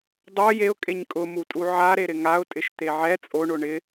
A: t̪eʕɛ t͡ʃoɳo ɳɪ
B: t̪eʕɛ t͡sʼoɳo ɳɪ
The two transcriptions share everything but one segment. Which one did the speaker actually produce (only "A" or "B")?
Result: B